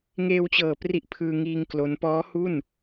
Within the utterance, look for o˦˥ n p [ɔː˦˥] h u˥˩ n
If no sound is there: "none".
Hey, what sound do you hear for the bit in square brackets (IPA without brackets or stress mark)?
ɔː˦˥